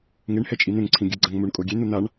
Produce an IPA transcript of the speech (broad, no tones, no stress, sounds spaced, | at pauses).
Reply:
ŋ e ɳ h ɛ t͡ʃʼ i n̪ ẽ ŋ ǀʰ ĩ ɡʲ ɯ ɡ͡ǀ a ŋ m u ɳ kʼ o ɡʲ e n̪ u n̪ a ɳ